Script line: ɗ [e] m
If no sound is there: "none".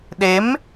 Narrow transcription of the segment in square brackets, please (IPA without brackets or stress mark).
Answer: e